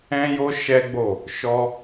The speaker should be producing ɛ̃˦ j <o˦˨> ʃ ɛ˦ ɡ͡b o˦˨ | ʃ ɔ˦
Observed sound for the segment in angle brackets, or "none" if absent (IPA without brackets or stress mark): o˦